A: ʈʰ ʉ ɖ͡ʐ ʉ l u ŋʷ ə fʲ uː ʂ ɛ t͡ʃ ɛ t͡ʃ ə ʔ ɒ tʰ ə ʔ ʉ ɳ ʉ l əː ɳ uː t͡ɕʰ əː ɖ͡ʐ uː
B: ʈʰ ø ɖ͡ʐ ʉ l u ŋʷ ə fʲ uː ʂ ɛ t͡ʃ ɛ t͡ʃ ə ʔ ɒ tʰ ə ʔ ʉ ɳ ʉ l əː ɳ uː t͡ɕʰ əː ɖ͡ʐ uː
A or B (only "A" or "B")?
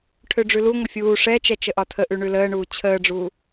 B